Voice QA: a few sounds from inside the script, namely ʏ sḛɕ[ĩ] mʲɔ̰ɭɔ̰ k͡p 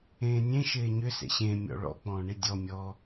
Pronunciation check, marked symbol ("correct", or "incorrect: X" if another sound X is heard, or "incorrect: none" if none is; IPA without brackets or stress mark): incorrect: ẽ